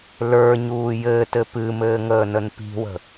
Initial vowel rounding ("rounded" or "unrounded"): unrounded